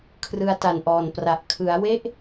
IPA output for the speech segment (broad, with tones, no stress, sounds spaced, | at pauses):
kʰ r ɯ˧ a̯ t a˨˩ n ʔ ɔː˨˩ n p r a˨˩ ʔ kʰ ɯ˩˦ a̯ w e˥˩ ʔ